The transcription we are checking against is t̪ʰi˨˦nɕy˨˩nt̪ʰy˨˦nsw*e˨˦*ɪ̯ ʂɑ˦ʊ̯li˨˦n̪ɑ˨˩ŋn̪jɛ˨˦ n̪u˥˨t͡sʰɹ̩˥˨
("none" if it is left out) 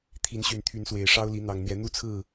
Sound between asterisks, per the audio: e˨˩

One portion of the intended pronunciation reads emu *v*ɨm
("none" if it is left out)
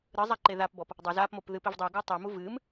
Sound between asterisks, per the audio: v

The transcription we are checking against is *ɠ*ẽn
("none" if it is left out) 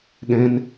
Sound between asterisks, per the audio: ɠ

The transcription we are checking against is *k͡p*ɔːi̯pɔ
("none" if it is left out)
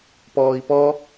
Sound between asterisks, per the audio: p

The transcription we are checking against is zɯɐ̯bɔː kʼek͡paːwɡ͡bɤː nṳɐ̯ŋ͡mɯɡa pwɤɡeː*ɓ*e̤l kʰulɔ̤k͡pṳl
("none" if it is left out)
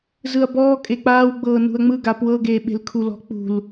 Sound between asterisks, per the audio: ɓ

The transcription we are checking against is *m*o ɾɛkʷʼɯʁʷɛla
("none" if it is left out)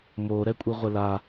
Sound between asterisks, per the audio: m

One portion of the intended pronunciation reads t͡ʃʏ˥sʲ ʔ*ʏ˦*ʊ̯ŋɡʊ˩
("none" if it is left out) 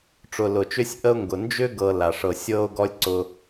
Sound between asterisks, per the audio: ə˦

